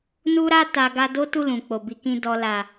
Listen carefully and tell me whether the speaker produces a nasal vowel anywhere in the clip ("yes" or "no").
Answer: yes